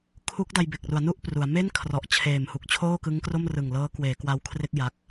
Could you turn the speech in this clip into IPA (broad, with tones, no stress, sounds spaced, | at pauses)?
kʰ u˦˥ k̚ d a˧ j b e˨˩ k̚ r u˩˦ a̯ n u˥˩ ʔ p r u˩˦ a̯ m e˥˩ n kʰ r ɔ˨˩ ʔ t͡ɕʰ eː˨˩ m h u˨˩ k̚ t͡ɕʰ oː˥˩ k ɯ˦˥ ŋ k r o˥˩ m r ɯ˨˩ ŋ l ɤː˦˥ k w eː˩˦ k w a˧ w kʰ r e˥˩ k̚ j a˦˥ k̚